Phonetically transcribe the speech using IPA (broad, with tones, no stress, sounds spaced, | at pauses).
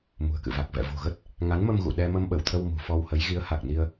m ṳ˨˩ ə̯ k ɨ̰˧˨ v a˨˩ k̚ v ɛ̰˧˨ v o̤˨˩ ɣ ə˦˥ t̚ | ŋ a˨˦ n m ə˧ m ɣ ṵ˧˨ ɗ ɛ˧ m ə˧ m ɓ ə˧˩ w t̪ʰ ə˧ w m ṳ˨˩ f ɔ˧ w h ə˨˦ j ɣ i˨˦ ə̯ h a˨˩ k̚ n i˧ ə̯